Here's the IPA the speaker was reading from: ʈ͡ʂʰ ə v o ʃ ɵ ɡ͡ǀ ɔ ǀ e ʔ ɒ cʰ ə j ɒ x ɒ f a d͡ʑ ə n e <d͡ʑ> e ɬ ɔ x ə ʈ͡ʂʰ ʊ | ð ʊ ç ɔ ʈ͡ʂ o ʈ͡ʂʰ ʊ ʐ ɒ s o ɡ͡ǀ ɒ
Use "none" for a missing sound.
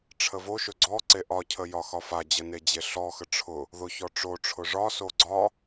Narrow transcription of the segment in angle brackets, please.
d͡ʑ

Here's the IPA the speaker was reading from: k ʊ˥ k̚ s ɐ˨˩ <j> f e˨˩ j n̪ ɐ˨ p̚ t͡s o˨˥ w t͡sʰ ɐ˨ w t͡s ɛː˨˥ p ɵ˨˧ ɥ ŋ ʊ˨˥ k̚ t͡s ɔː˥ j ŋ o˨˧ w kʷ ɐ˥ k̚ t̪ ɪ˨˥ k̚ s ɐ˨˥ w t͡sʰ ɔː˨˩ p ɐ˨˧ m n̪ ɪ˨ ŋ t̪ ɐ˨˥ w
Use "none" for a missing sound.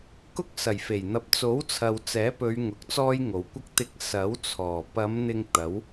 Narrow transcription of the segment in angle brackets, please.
j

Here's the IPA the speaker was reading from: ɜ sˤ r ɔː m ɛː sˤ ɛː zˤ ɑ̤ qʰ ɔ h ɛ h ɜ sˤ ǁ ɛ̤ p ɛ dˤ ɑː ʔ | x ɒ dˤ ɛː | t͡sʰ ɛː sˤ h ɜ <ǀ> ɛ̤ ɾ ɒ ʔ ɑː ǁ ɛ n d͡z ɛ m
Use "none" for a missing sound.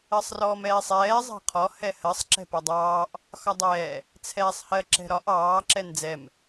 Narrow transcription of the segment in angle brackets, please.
ǁ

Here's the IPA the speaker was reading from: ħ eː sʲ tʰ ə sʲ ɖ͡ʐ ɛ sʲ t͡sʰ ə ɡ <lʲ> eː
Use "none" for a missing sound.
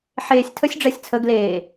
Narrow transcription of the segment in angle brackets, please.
l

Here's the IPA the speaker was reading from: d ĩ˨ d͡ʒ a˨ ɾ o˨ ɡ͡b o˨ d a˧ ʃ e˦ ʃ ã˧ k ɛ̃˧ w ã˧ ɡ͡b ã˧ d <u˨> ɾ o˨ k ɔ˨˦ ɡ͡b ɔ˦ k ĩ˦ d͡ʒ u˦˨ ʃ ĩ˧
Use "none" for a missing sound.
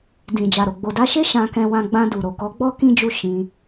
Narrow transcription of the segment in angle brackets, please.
u˨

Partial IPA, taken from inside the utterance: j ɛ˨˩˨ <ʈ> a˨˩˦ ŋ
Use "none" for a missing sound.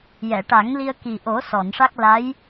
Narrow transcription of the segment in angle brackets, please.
ʈ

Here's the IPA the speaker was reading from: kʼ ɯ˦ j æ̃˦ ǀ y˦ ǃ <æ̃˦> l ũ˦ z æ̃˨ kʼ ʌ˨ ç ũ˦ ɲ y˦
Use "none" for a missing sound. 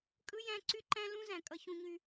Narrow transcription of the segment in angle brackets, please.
æ̃˦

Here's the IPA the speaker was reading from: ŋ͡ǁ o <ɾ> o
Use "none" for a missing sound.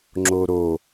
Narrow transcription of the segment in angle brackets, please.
ɾ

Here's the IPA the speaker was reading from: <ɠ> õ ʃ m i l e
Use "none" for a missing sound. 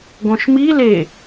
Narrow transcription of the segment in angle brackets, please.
ɡ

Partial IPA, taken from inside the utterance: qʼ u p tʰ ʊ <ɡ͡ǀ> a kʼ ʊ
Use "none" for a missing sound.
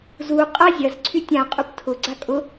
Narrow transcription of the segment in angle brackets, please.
ɡ͡ǀ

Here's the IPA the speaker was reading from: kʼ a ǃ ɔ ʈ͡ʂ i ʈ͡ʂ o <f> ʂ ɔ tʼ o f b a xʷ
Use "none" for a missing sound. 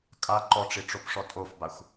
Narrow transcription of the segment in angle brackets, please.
p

